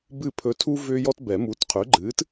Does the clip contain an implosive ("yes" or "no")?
no